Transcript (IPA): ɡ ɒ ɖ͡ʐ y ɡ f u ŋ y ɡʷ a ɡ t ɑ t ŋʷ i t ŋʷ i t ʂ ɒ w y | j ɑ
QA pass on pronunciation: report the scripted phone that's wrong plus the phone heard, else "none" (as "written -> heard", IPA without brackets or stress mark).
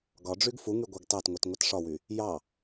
none